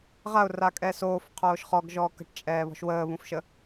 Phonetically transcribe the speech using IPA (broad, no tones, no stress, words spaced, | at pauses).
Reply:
ʁaʊ̯ra kʼɛsoːf qʰoːʃχɔɡʒɔː kə̤ʈt͡ʃʼɛːβɔ̤ʃ wəːβũfʃə